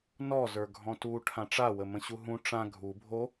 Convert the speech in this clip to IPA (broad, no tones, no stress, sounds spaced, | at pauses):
n ɔ z ə˞ ɡʱ ɔ̃ t u ʈʰ ã ʈ͡ʂ a w ə m ə̃ ɕ u ɦ ũ ʈ͡ʂ ã ɡʱ u bʱ o